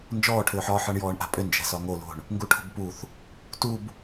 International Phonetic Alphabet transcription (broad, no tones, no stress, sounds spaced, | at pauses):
n d͡ʒ ɔː ʈʰ ʏː ħ ɒː ħ ɒ ɳ j ɔː ɳ ʔ a̤ pʼ ʏ n d͡ʒ ɛ̤ s ɒ ŋ o l o̤ ɳ | ŋ ɡ u ʈʰ o̤ b p u θ | t u b